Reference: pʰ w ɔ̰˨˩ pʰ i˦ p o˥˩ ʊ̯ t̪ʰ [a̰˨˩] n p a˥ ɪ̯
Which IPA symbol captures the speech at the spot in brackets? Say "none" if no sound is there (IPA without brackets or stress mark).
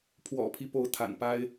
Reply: a̰˨˩